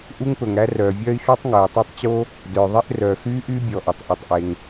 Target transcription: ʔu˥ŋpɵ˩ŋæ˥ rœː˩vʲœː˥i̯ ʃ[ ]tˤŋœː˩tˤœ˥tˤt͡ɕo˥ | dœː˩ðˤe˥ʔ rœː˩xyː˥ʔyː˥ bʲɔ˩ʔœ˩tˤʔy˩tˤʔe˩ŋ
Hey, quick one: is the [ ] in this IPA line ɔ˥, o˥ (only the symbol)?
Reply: ɔ˥